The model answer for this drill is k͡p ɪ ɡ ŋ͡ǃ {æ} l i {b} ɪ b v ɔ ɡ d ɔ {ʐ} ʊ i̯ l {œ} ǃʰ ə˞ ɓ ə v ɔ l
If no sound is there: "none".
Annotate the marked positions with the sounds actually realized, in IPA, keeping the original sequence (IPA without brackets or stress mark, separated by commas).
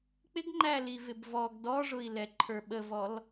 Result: æ, v, ʐ, ɛ